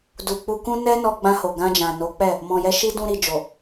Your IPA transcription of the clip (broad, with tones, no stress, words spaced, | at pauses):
du˨k͡pu˧kũ˦ nɛ˦nɔ˧ɡ͡bã˧ho˨ ɡã˧d͡ʒã˨no˨˦ k͡pɛ˦˨ | mɔ̃˨jɛ˧ ʃi˦ dũ˧ ɾi˨d͡ʒo˨